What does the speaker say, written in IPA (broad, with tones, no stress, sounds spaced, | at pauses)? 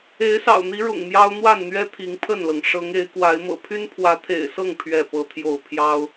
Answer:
e˨˦ ɪ̯ s ɑ̰˨˩ ʊ̯ n̪ i˨˦ ɻ ʊ̰˨˩ ŋ m j ɑ˦ ʊ̯ n̪ w a˥˨ n n̪ ɥ ɛ˦ t̪ʰ i˨˦ ŋ pʰ ə˥˨ n l ɤ˩ ŋ ʂ ɤ˨˦ ŋ e˨˦ ɪ̯ k w a˨˦ ɪ̯ m ɤ̰˨˩ pʰ y˦ n pʰ w ä˨˦ t̪ʰ ḛ˨˩ ɪ̯ s ɤ˥˨ ŋ pʰ ɥ ɛ˥˨ p ɤ˦ t̪ʰ j o˥˨ ʊ̯ pʰ j ɑ˦ ʊ̯